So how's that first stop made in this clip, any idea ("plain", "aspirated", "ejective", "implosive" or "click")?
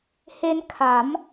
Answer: aspirated